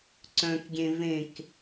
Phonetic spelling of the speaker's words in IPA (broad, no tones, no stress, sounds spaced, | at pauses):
ǀ œ̃ k ɡʲ ẽ v ẽ k